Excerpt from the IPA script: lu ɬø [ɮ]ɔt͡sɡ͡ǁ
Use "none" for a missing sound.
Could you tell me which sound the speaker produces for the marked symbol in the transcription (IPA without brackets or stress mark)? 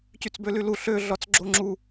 ɮ